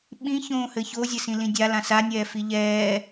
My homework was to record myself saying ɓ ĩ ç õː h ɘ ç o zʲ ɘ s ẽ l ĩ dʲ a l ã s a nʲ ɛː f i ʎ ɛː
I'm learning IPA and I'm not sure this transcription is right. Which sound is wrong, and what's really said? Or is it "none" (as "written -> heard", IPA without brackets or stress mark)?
ẽ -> ĩ